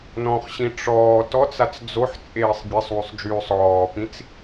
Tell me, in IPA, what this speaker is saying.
nɔ̃χɕĩ ʈ͡ʂɔː tɔt͡sat͡s d͡zoħt͡sʼeːsˤ bʲesˤwysˤ d͡ʒyːsˤ ɔːpĩt͡s

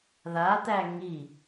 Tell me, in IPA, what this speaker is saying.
ðat̪æ ŋi

